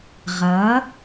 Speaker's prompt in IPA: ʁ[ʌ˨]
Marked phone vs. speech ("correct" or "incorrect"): incorrect